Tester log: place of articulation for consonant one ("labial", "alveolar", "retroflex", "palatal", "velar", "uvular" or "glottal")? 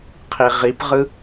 uvular